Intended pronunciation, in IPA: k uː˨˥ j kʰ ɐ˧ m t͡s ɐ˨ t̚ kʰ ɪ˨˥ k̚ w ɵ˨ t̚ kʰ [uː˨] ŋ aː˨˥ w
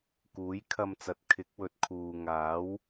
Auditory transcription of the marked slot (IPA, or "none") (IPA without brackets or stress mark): uː˨